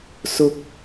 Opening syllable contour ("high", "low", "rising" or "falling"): high